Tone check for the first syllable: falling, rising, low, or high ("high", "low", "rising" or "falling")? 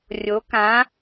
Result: rising